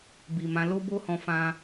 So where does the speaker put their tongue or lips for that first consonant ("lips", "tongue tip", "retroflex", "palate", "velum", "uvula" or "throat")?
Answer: lips